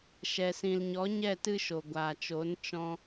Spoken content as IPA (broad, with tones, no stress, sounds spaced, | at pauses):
ʃ ɛ˨ s ĩ˨ l ɲ ɔ˨˦ ɲ ɛ˦˨ t ɨ˦ ʃ o˨ ɡʷ aː˨ t͡ʃ o˨˦ n t͡ʃ ɔ̃˧